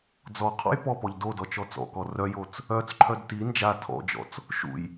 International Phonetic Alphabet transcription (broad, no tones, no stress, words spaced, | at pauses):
d͡zɔ qʰɔ̰jpɔpɔʎ dodɔ t͡ʃɔt͡sɔ̰kɔ rœjot͡s | œt͡sǃʰœd ti nd͡ʒa tʰɔ̰d͡ʒɔ̰t͡s | ʃṵj